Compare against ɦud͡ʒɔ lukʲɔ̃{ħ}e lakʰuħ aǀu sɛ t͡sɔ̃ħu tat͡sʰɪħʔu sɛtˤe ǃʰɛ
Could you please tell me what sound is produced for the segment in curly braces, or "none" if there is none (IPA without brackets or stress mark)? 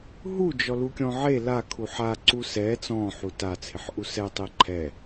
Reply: ʕ